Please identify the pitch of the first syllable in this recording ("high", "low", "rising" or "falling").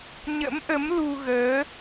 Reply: rising